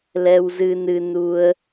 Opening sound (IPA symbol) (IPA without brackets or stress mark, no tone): l